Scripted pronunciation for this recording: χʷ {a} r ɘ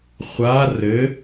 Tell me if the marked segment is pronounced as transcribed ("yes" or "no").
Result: yes